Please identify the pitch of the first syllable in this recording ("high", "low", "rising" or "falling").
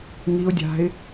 rising